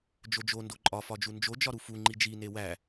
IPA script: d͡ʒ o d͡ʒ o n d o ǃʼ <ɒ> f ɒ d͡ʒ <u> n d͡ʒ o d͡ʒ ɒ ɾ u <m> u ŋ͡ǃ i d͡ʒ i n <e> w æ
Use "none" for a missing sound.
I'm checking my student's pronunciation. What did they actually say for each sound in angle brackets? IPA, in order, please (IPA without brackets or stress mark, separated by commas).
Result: ɒ, u, f, e